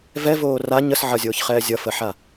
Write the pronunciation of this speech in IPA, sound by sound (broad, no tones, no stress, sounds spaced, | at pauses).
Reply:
v ɛ v oː r a ɲ ə s ʕ ʌ zʲ oː ç χ ɛː zʲ ʌ f ə ħ a